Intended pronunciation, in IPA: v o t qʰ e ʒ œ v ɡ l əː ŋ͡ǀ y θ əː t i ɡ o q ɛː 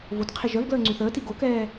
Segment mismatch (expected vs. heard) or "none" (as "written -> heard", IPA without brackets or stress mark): q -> k